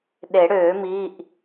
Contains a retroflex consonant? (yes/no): yes